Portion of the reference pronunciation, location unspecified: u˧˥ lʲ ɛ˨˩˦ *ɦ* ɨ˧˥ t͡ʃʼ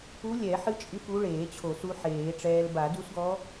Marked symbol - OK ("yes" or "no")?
no